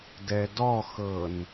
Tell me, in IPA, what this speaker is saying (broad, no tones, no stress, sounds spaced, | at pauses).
d ɛ d ɔ x ɤ n